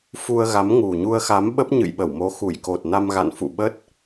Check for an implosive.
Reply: present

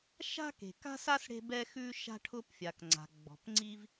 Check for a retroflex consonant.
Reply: present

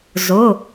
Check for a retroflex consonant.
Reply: absent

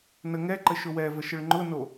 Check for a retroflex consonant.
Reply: present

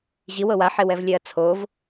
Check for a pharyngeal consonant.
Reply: present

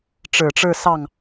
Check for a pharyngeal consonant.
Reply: absent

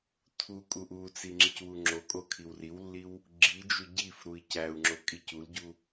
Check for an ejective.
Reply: present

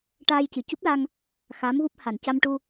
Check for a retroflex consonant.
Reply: present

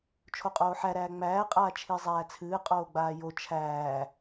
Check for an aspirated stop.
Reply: present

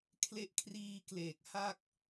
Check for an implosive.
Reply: absent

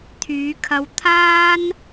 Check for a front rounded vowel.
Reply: present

